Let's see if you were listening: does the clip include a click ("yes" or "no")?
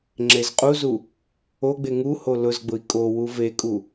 yes